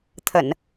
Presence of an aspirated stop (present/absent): present